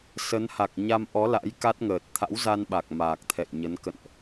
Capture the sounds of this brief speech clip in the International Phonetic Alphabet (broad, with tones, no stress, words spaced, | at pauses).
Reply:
sə˨˦n ha˨˩k̚ɲa˧mʔɔ˨˦la̰˧˥j ka˦˥t̚ŋəː˨˩t̚ t̪ʰa̰˧˥wza˧nɓa˨˩k̚ maː˨˩k̚t̪ʰɛ̰˧˨jɲə˨˦n kə̰˧˨nʔ